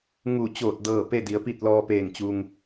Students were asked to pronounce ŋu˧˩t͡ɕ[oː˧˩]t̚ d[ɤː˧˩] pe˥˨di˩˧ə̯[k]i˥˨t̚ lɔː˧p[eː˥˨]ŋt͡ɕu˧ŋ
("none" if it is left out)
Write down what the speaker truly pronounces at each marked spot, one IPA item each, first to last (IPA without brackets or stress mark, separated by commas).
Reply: oː˧˩, ɤː˧˩, p, eː˧˩